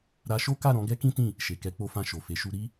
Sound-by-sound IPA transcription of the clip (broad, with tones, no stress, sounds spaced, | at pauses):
ɾ a˧ ʃ o˦ k a˦˨ ɾ ɔ̃˨˦ ɡ ɛ˦ k ĩ˦ t ĩ˦˨ | ʃ e˨ k ɛ˨˦ k͡p o˧ f ã˧ ʃ o˨ f e˨˦ ʃ u˧ ɾ i˦